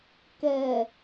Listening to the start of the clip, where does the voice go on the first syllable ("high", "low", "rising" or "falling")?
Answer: low